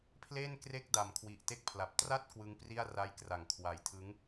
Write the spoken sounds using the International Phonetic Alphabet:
pʰ l eː˥˩ n k r e˥˩ k̚ d a˨˩ m kʰ w i˨˩ ʔ t e˥˩ k̚ pʰ l a˨˩ p̚ t r a˥˩ t̚ k w ɯ˦˥ ŋ p r i˥˩ a̯ r a˦˥ j k r a˩˦ ŋ kʰ w a˨˩ j tʰ ɯ˦˥ ŋ

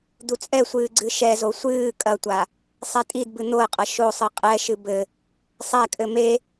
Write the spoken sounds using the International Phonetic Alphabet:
d̪ u t͡sʼ ɛ sʷ ɨː ɡ͡ǀ ɨ ʃ ɛ z o sʷ ɨː kʼ ɐ tʷ a | sˤ ɛ tʼ i d b ɨ n̪ o ə̯ qʼ ɐ ʃ o sˤ ɨ qʼ ɛ ʃ ɨ b ɘ | sˤ ɛ kʼ ɘ m e

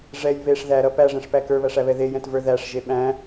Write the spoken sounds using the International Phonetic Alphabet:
ʐ ɛ j β e ʂ ð æ ɾ ʌ p æ ʐ ɛ̃ ʂ p æ k ə˞ β æ ʂ æ β ɛ ð e j ɛ̃ t v ə˞ ð æ ʂ ʒ e ɓ æ̃

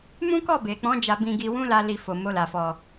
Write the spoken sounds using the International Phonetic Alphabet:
m ũ˦ k ɔ˦˨ b e˨ k͡p ɔ̃˨˦ d͡ʒ a˧ b ĩ˧ ɡ i˧ w ũ˦ l a˦ l i˧ f o˨ m o˧ l a˨ f ɔ˨

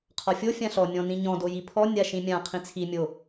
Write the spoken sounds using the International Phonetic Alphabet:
qʰ ɒ fʲ o fʲ ã ɬ ɔ nʲ ɔ̃ n ĩ ɲ ɔ̃ d o j i pʰ ɔ nʲ a ʃ ĩ mʲ ã qʰ ĩ t͡sʰ i mʲ o

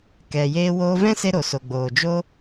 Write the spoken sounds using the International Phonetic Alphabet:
k ɛ˨ j eː˧ w oː˧ v ɛ̃˦ s e˦ ɾ o˨ s o˨ ɡ͡b oː˨ d͡ʒ o˦

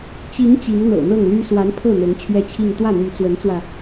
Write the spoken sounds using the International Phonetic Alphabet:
t͡ɕ i˧˥ ŋ t͡ɕ i˧˥ ŋ n̪ ɤ̰˨˩ n̪ ɤ˥˩ ŋ l y˥ s w a˧˥ n pʰ ɤ˥˩ n̪ ɤ˧˥ ŋ t͡ɕʰ ɥ ɛ˥˧ t͡ɕʰ i˥˧ ŋ t̪ w ä˥˩ n̪ y˧˥ t͡s w ə˧˥ n t͡s w ä˧

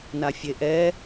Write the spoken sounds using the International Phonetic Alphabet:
n a fʲ e ʔ ɛ

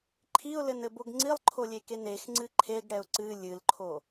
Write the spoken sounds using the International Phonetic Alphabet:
ǃʰ i ʊ̯ l ɘ n ɘ b o ɡ ŋ͡ǀ i lˠ ǃʰ o lʲ e k e n e x ŋ͡ǀ ɨ ǃʰ e ɡ ɽ ɛ ʊ̯ ǀ ɨ lʲ ɨ l ǃʰ o

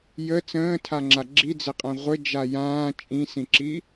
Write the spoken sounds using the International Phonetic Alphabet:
j ə t͡s ə̃ː tʰ a ŋ͡ǁ a ɡ͡ǁ i d͡z ɘ qʼ ã ʁʷ ɘ d͡ʒ a j ãː t͡ʃʼ ĩ s ĩ ǁ i

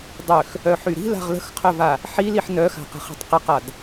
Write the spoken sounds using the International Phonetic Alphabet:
dˤ ø x | œ ħ y ɾ i̤ l a̤ ʁ l ə̤ x qʰ œ v a | ħ i l i ħ n œ x a̤ q ə̤ χ i̤ tˤ q ə q a d

